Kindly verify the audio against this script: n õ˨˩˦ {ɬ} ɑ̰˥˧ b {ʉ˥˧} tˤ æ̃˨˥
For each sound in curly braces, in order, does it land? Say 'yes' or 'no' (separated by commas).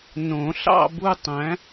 yes, no